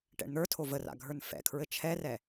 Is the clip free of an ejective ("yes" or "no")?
yes